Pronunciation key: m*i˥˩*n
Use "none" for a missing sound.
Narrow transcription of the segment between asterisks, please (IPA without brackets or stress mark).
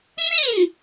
i˥˩